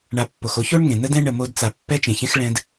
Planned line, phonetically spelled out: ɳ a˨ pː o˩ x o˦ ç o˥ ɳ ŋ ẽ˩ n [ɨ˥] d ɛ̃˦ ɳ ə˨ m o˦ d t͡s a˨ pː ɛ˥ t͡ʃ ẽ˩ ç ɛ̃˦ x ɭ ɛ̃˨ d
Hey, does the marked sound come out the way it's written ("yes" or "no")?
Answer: no